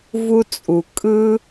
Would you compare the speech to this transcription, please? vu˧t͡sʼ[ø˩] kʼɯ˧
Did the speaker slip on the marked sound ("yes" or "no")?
yes